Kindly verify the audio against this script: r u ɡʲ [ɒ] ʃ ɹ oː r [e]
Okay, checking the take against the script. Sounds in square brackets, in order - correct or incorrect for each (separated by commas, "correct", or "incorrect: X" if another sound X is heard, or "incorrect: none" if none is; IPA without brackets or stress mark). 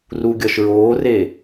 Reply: correct, correct